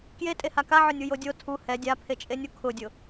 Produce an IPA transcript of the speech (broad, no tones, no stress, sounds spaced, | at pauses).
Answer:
k j e tʼ e h a k a ʕ ʊ nʲ u j o dʲ o tʰ u h ɛ dʲ a pʰ e t͡ʃʼ e nʲ u kʰ ʊ dʲ ʊ